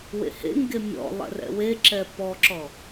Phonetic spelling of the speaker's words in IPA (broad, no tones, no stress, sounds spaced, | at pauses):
w ḛ h ḛ ŋ ɡ e mʲ ɔ̰ lˠ ɛ̰ r ɛ̰ w e ǁ ɛ p ɔ ǁ ɔ